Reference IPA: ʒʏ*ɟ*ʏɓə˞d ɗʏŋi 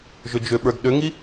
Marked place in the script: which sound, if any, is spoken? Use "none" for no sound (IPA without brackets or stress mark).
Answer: d͡ʒ